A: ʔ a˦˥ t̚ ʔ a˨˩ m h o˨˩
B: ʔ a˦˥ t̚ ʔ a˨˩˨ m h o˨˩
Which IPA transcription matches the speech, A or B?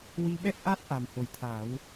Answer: A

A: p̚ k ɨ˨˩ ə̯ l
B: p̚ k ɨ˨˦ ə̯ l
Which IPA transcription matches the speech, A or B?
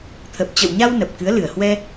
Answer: B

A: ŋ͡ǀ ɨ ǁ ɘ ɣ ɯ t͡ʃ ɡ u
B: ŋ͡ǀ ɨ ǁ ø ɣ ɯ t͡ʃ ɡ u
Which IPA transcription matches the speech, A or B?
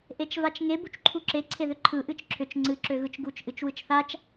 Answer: B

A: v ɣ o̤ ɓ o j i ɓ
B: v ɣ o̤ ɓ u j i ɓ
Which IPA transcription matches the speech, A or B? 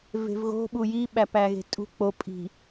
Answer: B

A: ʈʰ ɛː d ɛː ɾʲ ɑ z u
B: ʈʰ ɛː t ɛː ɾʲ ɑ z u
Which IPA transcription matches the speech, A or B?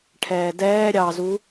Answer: A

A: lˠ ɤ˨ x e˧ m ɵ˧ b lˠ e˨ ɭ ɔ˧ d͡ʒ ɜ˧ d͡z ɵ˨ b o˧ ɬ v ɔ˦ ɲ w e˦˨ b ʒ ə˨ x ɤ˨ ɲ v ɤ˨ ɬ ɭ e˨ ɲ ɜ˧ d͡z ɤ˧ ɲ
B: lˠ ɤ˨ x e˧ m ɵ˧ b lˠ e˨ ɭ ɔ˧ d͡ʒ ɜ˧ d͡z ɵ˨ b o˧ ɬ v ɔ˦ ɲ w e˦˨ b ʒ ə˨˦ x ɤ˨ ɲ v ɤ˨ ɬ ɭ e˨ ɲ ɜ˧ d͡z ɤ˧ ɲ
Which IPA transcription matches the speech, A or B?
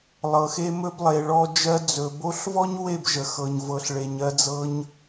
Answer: A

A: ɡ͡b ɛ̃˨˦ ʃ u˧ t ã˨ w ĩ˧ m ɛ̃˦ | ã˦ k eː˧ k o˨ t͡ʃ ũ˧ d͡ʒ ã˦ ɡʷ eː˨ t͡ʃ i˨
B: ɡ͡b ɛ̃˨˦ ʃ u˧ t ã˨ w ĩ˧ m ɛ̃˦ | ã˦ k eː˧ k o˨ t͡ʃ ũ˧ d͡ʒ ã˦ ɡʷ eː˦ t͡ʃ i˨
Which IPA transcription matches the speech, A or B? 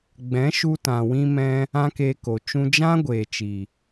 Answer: A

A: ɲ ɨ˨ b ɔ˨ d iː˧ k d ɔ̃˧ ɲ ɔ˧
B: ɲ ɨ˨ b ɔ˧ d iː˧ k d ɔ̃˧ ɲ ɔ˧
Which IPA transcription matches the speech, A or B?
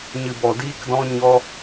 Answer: A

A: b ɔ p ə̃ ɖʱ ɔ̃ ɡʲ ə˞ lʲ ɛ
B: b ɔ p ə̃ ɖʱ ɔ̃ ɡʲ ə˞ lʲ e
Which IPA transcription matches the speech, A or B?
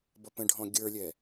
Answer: A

